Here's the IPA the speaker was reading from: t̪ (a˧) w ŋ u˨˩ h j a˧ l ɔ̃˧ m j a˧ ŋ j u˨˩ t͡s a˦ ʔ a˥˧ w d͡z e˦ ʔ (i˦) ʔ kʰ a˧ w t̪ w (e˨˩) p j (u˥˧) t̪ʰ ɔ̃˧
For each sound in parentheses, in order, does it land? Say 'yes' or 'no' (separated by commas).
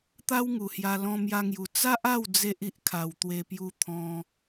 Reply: no, yes, no, no